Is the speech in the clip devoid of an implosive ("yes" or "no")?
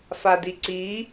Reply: yes